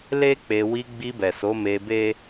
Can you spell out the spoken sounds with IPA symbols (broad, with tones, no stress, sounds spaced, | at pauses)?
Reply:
l e˦ k͡p e˧ w i˧ ɡ͡b i˧ b ɛ˨ s o˨˦ m e˧ b e˦